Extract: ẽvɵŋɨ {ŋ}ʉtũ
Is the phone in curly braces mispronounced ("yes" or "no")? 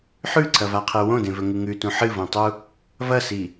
no